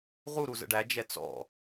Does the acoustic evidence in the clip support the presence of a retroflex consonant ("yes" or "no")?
yes